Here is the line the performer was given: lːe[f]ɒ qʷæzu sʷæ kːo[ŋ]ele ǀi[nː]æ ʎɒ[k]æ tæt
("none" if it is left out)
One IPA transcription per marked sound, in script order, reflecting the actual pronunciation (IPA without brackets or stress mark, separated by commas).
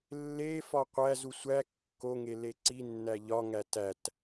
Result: f, ŋ, nː, ŋ